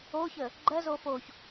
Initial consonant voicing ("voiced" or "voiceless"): voiceless